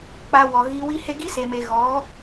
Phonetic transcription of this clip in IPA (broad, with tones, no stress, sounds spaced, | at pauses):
k͡p a˧ w ɔ˨ ɣ i˧ w i˦ h e˦ ɡ i˦ s e˨ m e˨ ɣ ɔ˨˦